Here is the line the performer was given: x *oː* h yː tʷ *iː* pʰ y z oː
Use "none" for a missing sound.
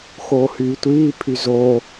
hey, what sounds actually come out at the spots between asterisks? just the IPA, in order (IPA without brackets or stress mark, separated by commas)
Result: oː, iː